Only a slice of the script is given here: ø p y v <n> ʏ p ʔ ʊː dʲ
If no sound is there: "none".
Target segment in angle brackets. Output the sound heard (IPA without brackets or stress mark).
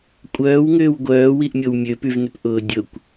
n